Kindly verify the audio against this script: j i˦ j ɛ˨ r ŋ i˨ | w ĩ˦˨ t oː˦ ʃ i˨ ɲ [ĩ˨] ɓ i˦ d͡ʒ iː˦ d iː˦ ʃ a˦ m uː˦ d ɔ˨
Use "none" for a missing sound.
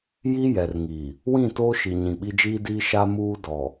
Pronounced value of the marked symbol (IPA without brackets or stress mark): ĩ˨